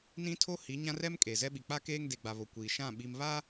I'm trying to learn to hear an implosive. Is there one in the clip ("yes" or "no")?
yes